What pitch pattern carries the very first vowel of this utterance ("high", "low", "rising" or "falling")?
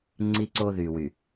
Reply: high